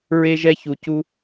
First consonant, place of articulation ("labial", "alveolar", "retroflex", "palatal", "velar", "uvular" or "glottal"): alveolar